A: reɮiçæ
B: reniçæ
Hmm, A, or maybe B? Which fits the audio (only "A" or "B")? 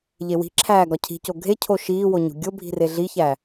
A